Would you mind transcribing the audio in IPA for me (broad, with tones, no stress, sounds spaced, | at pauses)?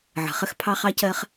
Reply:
ʕ ə̤˨ χ ə˦ x pʰ ɑ˦ χ ɑ˦ c ɜ˦ χ